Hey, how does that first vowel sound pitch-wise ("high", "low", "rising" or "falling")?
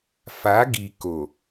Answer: rising